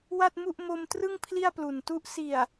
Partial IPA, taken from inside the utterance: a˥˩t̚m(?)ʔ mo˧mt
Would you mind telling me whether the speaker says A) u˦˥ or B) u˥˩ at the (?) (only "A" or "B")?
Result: B